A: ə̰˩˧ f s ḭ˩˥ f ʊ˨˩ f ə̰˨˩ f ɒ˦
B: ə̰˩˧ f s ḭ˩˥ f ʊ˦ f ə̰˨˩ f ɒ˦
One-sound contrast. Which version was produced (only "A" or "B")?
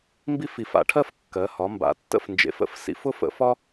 B